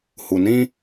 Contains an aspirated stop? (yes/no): no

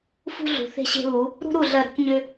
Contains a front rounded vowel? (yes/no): yes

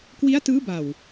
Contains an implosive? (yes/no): no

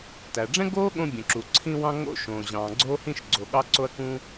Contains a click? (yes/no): yes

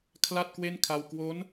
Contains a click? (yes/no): no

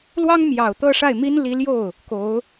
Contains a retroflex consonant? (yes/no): yes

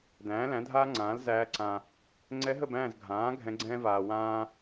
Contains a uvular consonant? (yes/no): no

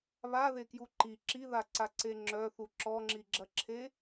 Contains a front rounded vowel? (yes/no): yes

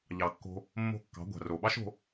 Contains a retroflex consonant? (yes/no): no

